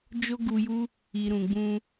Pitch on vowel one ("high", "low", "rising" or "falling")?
high